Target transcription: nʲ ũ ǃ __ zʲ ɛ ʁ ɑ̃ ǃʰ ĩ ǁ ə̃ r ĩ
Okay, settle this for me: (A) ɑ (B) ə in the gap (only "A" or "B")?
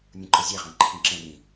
B